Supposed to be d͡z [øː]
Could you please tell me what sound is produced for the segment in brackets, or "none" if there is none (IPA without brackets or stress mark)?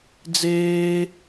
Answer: eː